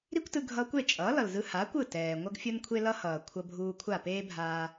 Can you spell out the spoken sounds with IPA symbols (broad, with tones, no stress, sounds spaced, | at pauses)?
ɾ i˥ kʷ t ɯ˧ ɡʱ ʌ˧ kʷ e˥˩ t͡ʃʼ ʌː˩˥ l ʌ˩ l z ɯ˧ h aː˩˥ kʷ ɯ˥˩ t ɛː˩ ŋʷ ʌ˥ ɡ fʲ o˥ n kʷʰ e˥ l ʌ˥ h ʌː˩ kʷʰ ʌ˧ bʱ uː˧ kʷʰ a˥˩ p eː˥ bʱ aː˧